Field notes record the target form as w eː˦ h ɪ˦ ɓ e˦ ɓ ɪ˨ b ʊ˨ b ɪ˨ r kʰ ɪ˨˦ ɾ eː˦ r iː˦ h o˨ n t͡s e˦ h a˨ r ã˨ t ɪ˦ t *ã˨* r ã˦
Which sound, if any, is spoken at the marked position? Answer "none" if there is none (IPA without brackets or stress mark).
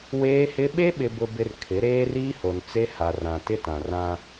ã˨